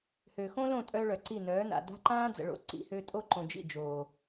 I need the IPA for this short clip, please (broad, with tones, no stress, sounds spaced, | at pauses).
h ø˨ x õ˦ l õ˦˨ tʼ œ˧ ɭ œ˨ ǀ i˦˨ n œː˨˦ n a̰˨ d a̤˦ ǃ ãː˦ d͡z ə̰˨ ɭ o̰˧ ǀ ḭ˧ h ø˧ tʼ o˦ ǃ õ˨ d͡ʒ ḭ˦˨ d͡ʒ oː˨